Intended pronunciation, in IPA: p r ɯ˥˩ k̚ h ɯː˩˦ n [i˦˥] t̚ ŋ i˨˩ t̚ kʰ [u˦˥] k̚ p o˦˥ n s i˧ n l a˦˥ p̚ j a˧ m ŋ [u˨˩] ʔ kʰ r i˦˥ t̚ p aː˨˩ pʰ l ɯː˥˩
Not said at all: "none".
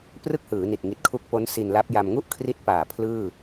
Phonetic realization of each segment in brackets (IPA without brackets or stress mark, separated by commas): i˨˩, u˦˥, u˥˩